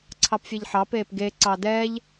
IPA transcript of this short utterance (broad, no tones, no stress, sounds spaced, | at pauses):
ǀʰ ɑ p fʲ e ʎ ħ ɑ p eː p ɡ e ǀ ɑ d ɛ ʎ